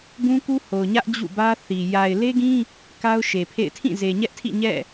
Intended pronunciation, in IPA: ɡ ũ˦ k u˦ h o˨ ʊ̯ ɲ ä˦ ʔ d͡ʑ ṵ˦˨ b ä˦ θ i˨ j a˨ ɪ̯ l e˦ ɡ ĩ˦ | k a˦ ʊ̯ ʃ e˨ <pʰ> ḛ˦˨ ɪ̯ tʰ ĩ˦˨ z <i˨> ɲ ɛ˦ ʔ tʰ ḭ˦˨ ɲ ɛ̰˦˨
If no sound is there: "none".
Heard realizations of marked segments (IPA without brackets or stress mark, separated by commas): pʰ, e˨